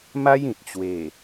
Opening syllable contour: high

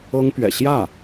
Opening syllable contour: high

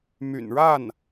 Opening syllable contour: low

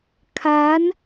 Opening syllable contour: rising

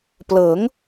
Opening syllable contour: rising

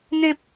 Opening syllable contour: high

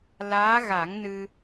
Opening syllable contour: rising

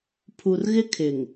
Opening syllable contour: low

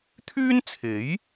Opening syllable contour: high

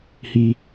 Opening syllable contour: high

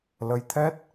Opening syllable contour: rising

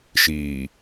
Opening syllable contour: low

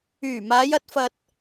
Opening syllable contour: low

